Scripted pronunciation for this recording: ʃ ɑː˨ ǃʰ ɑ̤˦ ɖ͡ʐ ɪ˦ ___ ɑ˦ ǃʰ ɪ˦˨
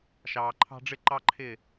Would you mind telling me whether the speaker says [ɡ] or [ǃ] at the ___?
ǃ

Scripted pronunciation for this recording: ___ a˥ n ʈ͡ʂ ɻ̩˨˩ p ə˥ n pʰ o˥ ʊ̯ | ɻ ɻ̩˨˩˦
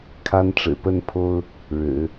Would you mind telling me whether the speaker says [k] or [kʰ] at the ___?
kʰ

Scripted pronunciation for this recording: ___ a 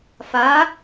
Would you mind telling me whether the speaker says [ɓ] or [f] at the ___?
f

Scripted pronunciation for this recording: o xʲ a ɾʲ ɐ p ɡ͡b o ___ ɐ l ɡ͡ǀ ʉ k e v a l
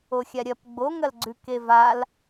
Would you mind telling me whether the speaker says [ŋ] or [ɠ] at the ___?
ŋ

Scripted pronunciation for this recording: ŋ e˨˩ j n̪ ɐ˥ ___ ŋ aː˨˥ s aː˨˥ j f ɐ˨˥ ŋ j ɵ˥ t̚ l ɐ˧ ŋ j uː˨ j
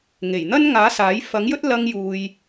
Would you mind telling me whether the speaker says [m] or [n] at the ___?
n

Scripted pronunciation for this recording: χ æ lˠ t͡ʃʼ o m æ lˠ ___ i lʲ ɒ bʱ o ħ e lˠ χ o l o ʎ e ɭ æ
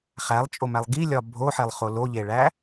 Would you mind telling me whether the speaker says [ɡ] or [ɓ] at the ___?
ɡ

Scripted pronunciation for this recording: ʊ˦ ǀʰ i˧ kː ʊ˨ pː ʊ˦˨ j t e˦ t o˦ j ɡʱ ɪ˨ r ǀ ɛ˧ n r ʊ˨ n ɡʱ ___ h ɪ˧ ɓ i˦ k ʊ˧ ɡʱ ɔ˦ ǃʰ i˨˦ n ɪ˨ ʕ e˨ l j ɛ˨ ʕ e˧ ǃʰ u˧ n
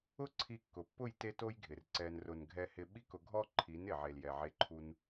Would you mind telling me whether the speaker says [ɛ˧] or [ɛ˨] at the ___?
ɛ˧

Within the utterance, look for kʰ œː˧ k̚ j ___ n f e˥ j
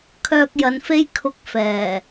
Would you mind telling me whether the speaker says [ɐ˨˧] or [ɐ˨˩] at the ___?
ɐ˨˧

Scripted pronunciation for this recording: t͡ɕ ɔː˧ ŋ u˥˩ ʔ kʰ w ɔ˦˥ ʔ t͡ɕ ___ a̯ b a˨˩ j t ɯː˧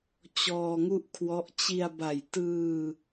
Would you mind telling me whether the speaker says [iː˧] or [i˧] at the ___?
i˧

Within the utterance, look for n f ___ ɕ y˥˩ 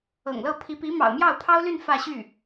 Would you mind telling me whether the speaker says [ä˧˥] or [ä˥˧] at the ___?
ä˥˧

